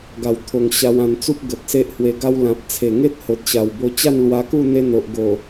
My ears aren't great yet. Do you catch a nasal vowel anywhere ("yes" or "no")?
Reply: yes